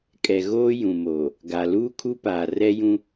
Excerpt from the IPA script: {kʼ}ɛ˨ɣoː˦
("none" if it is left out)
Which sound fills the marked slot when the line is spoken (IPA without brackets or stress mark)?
kʼ